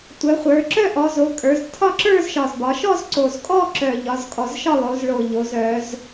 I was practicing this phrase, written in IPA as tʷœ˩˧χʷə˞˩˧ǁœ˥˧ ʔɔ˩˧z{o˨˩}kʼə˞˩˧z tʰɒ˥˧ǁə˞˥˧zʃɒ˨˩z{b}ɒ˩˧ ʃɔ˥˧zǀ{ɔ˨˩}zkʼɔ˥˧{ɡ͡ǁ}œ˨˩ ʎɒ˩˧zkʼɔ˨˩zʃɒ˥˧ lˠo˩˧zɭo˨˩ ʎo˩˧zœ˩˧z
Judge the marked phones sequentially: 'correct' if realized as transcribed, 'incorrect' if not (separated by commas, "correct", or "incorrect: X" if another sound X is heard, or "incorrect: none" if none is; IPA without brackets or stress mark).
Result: incorrect: o˩˧, correct, incorrect: o˨˩, incorrect: ǁ